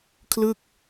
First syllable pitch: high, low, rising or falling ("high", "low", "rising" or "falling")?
falling